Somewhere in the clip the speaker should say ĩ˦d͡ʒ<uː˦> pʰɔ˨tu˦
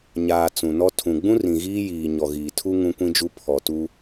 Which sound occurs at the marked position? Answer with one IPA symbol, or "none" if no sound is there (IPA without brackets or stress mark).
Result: u˦